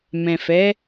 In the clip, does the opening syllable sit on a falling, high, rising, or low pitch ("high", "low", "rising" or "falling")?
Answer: low